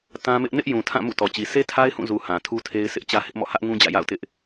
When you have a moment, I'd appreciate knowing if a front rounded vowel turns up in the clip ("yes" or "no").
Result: no